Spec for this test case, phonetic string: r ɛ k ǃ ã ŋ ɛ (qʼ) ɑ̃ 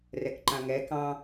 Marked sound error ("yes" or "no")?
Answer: yes